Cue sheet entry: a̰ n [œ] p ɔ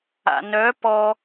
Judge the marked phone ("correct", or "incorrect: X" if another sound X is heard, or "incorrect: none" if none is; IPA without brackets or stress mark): correct